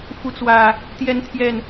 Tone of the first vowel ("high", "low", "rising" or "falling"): rising